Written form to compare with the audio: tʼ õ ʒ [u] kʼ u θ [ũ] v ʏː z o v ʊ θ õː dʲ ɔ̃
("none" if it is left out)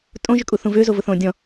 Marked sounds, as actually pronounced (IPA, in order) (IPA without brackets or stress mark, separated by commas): ʏ, ũ